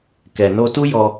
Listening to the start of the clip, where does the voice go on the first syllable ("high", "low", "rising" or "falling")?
low